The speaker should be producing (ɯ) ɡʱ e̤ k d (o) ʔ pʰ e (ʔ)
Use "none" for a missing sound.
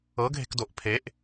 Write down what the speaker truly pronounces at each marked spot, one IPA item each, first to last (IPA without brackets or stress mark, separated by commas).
ɤ, o, ʔ